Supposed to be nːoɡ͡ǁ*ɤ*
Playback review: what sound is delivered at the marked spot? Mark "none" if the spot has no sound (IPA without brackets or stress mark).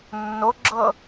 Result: ɤ